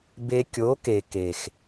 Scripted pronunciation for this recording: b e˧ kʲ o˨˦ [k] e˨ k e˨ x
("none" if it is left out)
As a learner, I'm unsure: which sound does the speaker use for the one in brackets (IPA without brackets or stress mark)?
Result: k